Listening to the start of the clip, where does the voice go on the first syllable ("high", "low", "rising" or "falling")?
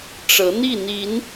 rising